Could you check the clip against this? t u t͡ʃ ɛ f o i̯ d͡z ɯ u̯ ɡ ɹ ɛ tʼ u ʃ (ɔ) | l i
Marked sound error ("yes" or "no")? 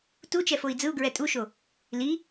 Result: yes